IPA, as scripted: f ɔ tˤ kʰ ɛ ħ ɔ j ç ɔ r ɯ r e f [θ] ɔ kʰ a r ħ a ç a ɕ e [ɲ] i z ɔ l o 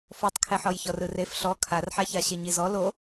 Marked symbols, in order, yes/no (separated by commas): no, yes